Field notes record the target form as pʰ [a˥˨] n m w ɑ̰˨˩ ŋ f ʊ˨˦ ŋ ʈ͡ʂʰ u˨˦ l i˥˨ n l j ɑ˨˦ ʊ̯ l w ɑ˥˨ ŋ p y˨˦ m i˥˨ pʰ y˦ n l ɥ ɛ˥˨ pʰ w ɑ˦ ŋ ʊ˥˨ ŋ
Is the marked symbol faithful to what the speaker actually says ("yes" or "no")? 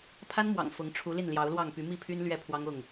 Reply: no